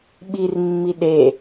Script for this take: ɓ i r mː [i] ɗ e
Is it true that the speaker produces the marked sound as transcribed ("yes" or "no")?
yes